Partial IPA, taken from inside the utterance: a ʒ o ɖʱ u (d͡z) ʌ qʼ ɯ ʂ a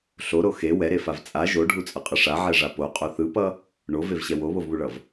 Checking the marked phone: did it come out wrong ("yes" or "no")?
yes